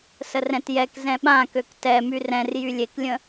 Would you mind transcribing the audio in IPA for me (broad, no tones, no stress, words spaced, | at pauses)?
sərɛ̃tjɛk zɛ̃ɓã køktɛ myrɛ̃r jylʲeklʲə̃